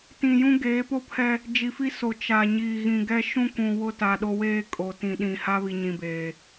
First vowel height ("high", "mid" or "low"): high